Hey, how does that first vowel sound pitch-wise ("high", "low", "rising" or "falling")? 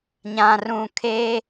low